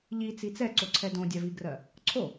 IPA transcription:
ʎ i t͡s i t͡s ɛ ǀ o ǀʰ ɛ d õ dʲ a v i ɡ r ɜ | ǀʰ o

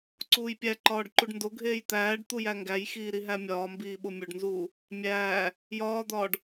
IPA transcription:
ǀ uː j pʲ æ ǃ ɒː ɖ ǃ u ɖ n d o ɡʱ eː j t̪ æː ɖ t̪ u j æ ŋ ɡ æ j x iː ɾ i ɦ æ mʲ ɒː m b iː ɓ o mʲ o ɖ n z uː | mʲ æː | j ɒː d̪ ɒː ɖ

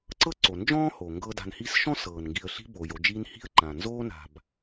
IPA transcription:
ǀ ɤ˥ ǀ o˩ n d͡ʒ ɔ̃ː˥ h o˩ ŋ ɡ ɤ˦ d a̤˨ n h iː˦ s ʃ ɔ̃˥ s ɤː˩ n ŋ ɡ i˨ ə̯ ɬ i̤˦ b oː˩ j o˨ d͡ʒ iː˦ n h i̤˥ ə̯ ǃ ã˩ n z oː˦ n a̤˨ b

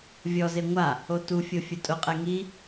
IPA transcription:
vʲ ɔ z e ŋʷ a | o t u fʲ o fʲ ʊ tʼ ʊ qʼ ɛ ŋ i

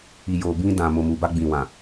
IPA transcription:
i˨ j oː˨ b ĩ˦ d ã˨ m o˨ m u˨ b a˦ ɡ͡b ĩ˨ w ã˨

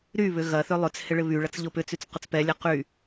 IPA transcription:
ɾ y β ʏ ɣ ɐ θ ø lˠ ø t͡s h ɪ ɭ ɪ β y ɭ ɐ t͡s ʎ ʊ p ʏ t͡s y t͡s q ʊ t͡s p ɛ lʲ ɛ q y

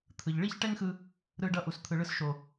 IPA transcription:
t̪ʰ ɯ˨ ʎ ɭ i˦ ç ʈ ɛ˦ ŋ x ɯ˧ | ɾ ɯ˧ ɖ ʌ˧ ʔ u˨ s t̪ʰ ɯ˨ ɭ ɯ˧ s ʃ o˨

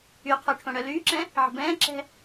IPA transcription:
y qʰ o ʈʰ õ ɽ œ l yː ǁ ɛ̃ | ʕ ə̤ b ɛ̃ː ǁ ɛ̤

